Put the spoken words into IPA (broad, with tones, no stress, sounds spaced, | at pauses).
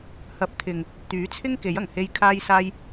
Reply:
h ɐ˨˥ p̚ t̪ʰ ɪ˨ ŋ | t̪ yː˨˥ t͡sʰ ɪ˥ ŋ k e˨˥ j ɐ˨˩ ŋ h e˧ j kʰ aː˧ j s aː˧ j